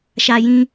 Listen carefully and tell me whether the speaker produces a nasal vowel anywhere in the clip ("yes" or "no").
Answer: yes